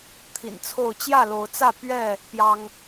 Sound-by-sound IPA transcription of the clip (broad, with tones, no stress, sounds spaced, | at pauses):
t̪ʰ ḭ˨˩ n t͡sʰ o˥˨ ʊ̯ t͡ɕ j ä˥˨ l o˨˦ ʊ̯ t͡s ä˥˨ p ɥ ɛ˥˨ | p j ɑ˦ ŋ